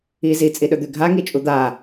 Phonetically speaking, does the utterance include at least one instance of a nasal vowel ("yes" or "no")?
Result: no